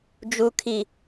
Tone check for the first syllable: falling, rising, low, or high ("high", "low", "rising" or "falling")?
low